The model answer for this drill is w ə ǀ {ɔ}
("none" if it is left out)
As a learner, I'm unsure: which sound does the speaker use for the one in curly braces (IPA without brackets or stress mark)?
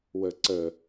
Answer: ə